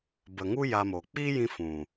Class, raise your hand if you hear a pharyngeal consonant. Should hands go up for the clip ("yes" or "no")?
no